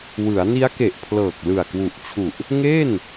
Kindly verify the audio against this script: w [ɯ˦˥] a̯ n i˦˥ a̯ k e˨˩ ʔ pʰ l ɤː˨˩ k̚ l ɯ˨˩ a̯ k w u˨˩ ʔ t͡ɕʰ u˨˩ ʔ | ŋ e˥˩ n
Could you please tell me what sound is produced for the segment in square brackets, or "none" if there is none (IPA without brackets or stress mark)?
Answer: ɯ˩˦